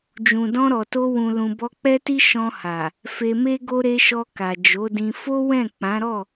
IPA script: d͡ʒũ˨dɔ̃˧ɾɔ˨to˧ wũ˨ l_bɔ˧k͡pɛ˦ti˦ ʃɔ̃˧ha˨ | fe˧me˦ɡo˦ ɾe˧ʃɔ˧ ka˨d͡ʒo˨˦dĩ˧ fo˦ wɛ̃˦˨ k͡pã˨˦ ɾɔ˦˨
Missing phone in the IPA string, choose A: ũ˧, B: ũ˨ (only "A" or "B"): B